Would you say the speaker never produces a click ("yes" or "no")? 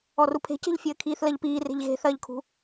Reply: yes